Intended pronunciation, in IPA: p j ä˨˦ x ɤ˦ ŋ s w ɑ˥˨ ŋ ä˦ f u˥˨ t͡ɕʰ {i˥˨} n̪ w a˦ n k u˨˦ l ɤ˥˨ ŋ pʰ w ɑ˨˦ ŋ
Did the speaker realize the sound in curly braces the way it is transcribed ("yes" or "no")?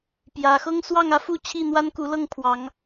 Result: yes